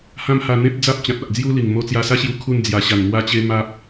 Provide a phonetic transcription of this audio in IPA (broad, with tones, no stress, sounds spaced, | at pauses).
h ã˧ m h a˧ n̪ ẽ˦ p̚ d͡z a˦ p̚ t͡ɕ ã˨ t̚ a˨ ʔ d͡z j u˦ l i˨˩ ŋ m o˧ t͡s j a˧ s a˦ ɕ j u˧ kʰ u˧ n d͡z j a˨˩ ɕ a˨˩ n m w a˦ t͡ɕ e˦ m a˦ p̚